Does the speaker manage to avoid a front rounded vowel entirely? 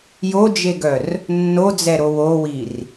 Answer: no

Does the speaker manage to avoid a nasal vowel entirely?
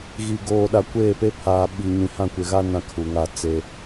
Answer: no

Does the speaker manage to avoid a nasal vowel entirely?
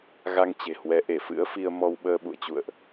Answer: yes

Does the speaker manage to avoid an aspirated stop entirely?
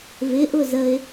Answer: yes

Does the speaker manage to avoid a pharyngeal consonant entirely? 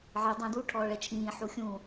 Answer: no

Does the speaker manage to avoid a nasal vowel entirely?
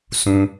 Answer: no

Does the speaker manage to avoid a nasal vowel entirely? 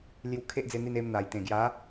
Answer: no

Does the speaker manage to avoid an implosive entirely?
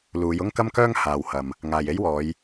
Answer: yes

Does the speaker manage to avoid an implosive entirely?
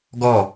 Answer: yes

